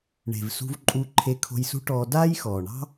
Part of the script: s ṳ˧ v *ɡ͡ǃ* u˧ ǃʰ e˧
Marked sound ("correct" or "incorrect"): incorrect